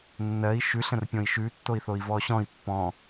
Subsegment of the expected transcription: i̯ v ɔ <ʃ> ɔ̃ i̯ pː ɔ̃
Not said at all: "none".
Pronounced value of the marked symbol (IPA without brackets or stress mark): ɕ